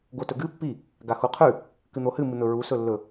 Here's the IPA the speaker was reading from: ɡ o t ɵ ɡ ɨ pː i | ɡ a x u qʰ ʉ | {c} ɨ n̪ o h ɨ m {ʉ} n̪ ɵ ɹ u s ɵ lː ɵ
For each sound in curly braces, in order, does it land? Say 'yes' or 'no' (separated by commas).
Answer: no, no